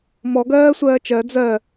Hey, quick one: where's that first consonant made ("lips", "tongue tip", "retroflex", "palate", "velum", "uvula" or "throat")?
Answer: lips